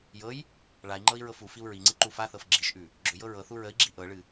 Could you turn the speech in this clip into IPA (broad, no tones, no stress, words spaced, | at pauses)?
jɤj | ɭai̯ŋ͡ǃɤi̯ ɹɤfufiu̯ ɹiŋ͡ǀɨ ǃufaθɤf ɡ͡ǁiʃʔʉ | ɡ͡ǁʏjɤ ɹɤθu ɹəi̯ɡ͡ǁi ʔɤɭɨ